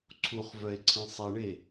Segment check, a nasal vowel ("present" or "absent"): present